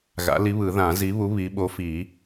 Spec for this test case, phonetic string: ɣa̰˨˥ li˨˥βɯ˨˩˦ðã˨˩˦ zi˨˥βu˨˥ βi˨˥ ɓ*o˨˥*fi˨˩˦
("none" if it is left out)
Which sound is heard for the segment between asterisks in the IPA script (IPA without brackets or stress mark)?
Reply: o˨˥